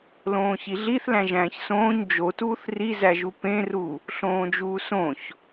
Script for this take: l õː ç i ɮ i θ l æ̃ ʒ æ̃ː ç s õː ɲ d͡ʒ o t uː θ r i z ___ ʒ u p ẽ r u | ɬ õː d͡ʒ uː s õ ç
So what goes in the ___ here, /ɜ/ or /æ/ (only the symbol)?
æ